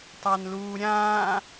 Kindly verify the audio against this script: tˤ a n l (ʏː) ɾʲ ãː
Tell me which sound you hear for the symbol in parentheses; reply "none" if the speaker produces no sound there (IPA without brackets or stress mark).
uː